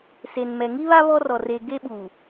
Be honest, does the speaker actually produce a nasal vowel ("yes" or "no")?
no